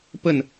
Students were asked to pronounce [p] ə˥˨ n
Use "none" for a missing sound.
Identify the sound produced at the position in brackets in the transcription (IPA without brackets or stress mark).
p